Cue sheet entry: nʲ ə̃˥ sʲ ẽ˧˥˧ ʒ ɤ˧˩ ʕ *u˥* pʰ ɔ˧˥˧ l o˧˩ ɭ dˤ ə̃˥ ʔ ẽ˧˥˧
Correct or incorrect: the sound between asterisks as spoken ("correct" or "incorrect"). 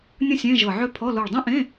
incorrect